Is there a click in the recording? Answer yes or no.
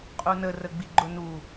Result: yes